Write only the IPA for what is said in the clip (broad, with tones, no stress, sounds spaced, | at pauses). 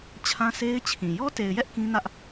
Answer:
t͡ɕʰ ã˦ sʰ e˦ ɪ̯ t͡ɕʰ ĩ˨ j ɔ˦ t e˨ ɪ̯ j ɛ˦ ʔ k ĩ˦ n ä˦ ʔ